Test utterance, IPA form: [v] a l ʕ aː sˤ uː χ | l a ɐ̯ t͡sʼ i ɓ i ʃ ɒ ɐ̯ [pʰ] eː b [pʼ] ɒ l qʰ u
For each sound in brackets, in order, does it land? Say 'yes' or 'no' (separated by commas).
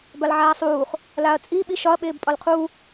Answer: no, no, yes